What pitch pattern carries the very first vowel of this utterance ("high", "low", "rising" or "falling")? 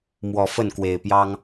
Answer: low